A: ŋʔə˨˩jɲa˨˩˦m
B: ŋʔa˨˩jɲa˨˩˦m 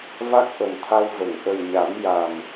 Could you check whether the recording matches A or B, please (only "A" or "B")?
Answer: A